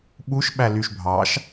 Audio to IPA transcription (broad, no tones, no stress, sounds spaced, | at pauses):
ɓ u ʃ ɓ æ l y ʃ bʱ ɑ ʃ